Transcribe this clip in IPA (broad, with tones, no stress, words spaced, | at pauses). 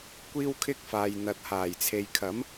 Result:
kʷiː˥wkʰɪ˥k̚faː˨j n̪ɐ˨t̚ haː˨˩jt͡sʰe˨jkʰɐ˨˥m